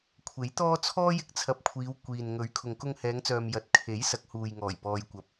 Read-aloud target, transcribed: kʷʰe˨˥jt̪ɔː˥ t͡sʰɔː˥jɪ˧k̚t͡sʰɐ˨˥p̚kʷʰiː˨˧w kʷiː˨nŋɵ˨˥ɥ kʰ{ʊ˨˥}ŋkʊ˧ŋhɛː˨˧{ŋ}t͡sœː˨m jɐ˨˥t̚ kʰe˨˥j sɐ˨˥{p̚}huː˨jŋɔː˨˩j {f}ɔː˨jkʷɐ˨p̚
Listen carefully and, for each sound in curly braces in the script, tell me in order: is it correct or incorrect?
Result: incorrect: ʊ˨, correct, incorrect: k̚, incorrect: p

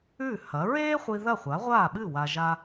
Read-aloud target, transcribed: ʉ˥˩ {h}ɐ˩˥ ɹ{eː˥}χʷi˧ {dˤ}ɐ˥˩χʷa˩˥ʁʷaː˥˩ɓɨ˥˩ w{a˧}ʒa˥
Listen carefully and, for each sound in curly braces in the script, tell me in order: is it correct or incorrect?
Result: correct, correct, incorrect: ð, correct

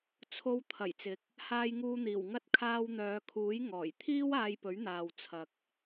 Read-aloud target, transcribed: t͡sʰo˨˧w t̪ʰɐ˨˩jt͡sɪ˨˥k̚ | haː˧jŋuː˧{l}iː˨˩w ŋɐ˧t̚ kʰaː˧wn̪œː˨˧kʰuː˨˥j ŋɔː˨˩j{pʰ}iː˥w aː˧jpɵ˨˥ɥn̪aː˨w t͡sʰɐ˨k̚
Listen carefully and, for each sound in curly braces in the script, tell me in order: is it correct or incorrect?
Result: incorrect: n̪, incorrect: t̪ʰ

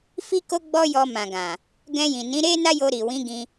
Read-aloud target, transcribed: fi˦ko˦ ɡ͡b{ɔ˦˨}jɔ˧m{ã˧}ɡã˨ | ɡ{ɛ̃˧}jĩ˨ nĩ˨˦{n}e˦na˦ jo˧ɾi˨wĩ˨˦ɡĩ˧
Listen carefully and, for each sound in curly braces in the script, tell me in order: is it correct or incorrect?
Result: incorrect: ɔ˦, incorrect: ã˨, correct, incorrect: ɾ

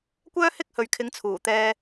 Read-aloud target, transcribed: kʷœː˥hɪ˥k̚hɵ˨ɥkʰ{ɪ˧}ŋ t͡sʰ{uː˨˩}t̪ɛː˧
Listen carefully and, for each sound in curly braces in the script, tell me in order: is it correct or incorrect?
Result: incorrect: ɪ˨˧, correct

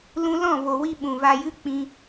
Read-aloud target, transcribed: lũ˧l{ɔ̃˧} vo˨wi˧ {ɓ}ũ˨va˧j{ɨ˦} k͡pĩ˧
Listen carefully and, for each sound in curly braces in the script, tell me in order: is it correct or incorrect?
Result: incorrect: ɔ̃˦˨, correct, correct

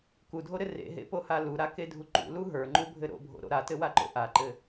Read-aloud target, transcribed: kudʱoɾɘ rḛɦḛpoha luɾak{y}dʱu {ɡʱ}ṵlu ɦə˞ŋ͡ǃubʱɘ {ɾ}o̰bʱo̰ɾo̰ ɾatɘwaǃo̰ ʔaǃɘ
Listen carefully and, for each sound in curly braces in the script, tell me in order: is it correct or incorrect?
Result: incorrect: e, incorrect: ǃ, correct

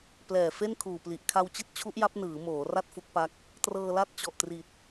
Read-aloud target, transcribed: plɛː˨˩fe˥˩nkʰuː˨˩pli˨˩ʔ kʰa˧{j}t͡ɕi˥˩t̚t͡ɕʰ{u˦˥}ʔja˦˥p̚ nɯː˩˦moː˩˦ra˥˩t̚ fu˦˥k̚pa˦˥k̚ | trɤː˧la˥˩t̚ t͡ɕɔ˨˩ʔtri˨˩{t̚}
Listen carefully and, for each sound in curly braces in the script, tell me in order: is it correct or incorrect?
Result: incorrect: w, correct, correct

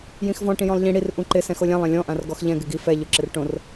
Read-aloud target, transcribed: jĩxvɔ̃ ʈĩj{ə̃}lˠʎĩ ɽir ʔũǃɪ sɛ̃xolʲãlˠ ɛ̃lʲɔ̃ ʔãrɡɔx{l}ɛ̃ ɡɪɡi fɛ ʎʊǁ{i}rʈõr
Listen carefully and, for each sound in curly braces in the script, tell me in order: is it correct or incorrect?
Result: incorrect: ɔ̃, incorrect: ʎ, incorrect: ɪ

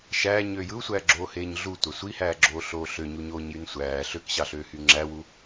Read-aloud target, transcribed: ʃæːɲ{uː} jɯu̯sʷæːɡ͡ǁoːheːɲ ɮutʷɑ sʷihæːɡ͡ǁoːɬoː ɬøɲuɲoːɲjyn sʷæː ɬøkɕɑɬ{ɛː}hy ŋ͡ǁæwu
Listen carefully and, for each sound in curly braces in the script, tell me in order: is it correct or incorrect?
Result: incorrect: øː, incorrect: øː

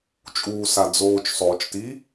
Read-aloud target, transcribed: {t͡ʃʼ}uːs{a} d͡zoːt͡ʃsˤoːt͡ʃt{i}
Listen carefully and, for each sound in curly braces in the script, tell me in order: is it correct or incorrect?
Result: correct, correct, correct

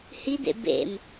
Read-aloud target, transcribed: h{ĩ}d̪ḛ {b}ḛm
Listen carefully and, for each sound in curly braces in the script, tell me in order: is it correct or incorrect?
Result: incorrect: i, correct

